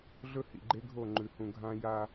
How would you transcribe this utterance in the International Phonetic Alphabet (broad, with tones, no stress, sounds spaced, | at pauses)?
ɮ ɵ˦ h ḭ˨ ɡ͡ǃ e˦ ɡʱ o˦˨ ŋ͡ǃ ʉ˨ h ũ˨ ɡʱ ã˦ j a˦